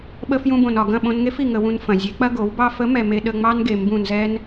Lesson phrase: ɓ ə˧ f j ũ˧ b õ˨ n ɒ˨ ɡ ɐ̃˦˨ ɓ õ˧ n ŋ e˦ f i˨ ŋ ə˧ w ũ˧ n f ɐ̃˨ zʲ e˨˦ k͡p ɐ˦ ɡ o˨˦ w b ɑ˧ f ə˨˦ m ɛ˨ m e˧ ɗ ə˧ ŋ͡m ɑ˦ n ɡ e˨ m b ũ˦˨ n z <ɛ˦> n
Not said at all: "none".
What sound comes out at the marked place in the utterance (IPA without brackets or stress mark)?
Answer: ɛ˦